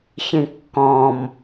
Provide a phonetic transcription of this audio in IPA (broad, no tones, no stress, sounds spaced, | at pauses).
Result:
ç ĩ kː ɔ̃ m